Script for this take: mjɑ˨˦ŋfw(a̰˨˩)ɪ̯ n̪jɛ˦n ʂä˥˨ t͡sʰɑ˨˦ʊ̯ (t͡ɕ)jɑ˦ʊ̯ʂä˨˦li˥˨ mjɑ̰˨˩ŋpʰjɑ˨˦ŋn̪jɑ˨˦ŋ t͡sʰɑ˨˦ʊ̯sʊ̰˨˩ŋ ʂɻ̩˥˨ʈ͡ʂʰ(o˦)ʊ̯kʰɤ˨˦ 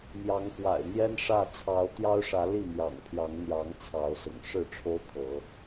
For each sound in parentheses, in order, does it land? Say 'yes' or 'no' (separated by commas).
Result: yes, no, yes